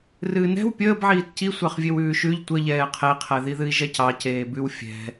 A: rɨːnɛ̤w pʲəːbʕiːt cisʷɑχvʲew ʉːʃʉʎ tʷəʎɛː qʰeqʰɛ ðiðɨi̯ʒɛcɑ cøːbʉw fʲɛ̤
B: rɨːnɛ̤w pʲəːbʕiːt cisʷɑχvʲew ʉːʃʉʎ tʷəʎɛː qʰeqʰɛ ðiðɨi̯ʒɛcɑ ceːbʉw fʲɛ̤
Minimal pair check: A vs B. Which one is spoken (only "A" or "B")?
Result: B